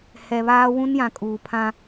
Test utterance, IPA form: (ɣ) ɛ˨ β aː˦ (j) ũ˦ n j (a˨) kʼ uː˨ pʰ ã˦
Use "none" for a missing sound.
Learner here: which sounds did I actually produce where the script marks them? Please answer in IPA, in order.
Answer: h, w, ã˨

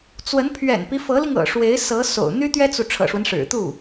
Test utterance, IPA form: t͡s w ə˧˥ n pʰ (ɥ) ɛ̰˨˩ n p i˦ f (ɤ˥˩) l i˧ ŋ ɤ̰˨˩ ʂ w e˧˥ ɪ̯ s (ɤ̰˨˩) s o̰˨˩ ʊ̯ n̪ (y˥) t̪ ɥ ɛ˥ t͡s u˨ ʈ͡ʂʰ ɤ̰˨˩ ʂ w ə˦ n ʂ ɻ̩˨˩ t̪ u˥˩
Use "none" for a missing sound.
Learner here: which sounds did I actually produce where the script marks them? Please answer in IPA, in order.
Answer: ɥ, ɤ˧˥, ɤ˧˥, y˥

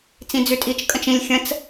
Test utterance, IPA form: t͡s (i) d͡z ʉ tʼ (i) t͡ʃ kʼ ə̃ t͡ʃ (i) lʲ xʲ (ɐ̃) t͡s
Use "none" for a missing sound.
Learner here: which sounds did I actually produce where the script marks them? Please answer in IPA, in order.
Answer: ĩ, i, ĩ, ə̃

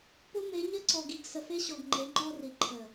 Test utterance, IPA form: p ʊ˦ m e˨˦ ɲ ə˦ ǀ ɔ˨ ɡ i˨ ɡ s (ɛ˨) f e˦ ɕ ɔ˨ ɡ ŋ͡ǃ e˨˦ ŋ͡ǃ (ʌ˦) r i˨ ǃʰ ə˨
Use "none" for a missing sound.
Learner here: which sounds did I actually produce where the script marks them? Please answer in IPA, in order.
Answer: ə˨, ɔ˦

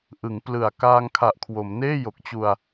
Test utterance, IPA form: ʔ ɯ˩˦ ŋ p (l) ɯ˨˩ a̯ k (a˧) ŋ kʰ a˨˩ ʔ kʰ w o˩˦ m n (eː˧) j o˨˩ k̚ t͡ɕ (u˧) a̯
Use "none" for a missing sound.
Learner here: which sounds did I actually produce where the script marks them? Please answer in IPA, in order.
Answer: l, aː˧, eː˥˩, u˧

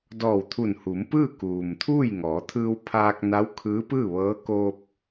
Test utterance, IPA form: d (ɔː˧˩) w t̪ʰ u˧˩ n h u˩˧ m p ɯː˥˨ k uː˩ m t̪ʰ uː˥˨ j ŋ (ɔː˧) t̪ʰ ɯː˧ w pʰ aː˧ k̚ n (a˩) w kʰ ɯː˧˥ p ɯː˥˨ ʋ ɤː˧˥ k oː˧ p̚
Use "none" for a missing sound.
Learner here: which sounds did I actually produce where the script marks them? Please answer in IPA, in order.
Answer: ɔː˧˩, ɔː˩˧, a˧˥

